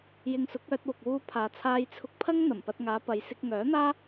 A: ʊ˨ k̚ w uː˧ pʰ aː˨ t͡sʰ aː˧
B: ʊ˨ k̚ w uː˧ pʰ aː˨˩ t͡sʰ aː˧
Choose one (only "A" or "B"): A